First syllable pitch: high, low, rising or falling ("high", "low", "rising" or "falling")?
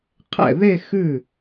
falling